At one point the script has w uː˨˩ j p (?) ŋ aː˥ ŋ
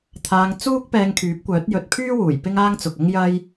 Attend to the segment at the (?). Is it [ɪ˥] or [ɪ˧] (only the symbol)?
ɪ˥